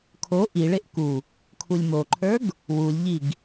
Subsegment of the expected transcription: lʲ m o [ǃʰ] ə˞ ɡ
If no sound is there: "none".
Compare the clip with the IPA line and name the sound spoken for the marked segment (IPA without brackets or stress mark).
ǃʰ